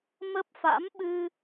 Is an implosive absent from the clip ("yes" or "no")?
no